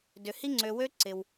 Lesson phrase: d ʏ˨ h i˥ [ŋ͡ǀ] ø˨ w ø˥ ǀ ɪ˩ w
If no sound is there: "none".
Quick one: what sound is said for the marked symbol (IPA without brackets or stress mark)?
ŋ͡ǀ